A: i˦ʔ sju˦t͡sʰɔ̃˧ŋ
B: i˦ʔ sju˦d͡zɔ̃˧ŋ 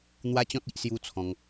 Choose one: A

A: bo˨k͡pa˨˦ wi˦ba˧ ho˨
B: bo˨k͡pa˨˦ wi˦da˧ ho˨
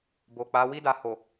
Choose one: B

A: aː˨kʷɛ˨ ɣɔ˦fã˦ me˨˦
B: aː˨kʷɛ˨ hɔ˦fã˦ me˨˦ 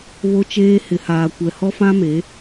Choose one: B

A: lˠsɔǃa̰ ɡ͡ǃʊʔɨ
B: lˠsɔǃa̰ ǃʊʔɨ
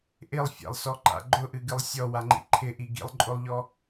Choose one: A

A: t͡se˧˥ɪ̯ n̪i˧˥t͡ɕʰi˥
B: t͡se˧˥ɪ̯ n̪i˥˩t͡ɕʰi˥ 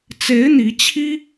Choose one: A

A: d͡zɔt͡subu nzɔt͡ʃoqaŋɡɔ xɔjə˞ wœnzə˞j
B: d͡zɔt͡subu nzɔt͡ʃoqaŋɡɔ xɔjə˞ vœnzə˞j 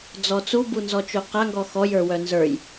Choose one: A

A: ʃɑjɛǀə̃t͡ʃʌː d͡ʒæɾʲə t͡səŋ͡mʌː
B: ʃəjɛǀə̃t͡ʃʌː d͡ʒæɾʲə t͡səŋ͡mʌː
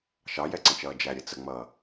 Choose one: A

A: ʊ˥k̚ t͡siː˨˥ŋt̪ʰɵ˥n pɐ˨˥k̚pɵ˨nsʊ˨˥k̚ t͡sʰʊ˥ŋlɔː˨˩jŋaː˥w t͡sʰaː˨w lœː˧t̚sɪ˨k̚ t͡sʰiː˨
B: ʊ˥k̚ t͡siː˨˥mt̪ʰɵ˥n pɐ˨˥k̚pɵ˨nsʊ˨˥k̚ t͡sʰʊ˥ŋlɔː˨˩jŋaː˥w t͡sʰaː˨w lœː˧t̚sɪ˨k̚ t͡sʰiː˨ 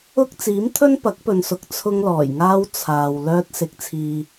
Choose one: B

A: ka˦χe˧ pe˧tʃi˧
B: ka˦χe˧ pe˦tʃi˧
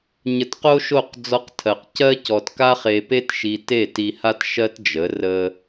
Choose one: B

